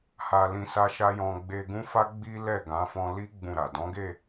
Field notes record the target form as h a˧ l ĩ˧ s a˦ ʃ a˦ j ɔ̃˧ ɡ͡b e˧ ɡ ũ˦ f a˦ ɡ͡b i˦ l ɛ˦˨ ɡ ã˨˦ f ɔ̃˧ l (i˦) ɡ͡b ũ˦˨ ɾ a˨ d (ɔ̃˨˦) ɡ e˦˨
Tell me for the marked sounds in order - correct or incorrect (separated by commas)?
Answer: correct, correct